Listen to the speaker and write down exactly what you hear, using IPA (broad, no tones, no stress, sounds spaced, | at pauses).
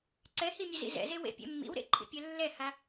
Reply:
ǀ ɛ h i mʲ ɵ z ḭ z ɛ̰ z e w ḛ pʲ ɛ̰ mː ḭ w ɾ ḛ ǃʰ ḭ pʲ œ lː ɛ h a